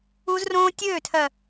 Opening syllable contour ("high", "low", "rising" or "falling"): high